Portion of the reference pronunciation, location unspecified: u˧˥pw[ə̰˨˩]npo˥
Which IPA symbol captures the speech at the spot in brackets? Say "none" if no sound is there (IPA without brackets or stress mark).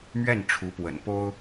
ə̰˨˩